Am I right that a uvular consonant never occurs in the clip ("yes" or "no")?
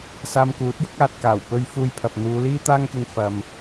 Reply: yes